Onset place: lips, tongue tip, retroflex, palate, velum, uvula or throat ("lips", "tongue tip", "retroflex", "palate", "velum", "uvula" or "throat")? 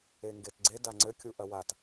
velum